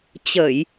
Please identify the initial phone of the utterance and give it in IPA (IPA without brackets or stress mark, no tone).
t͡ɕ